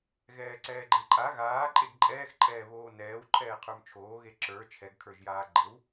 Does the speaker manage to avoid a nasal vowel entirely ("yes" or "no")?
yes